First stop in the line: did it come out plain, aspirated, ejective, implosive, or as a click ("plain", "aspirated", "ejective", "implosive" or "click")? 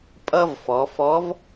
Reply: ejective